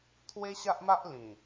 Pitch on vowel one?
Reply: high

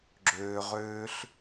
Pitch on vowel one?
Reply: low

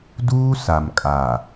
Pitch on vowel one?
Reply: high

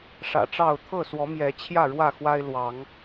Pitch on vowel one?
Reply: low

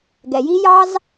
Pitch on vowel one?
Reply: low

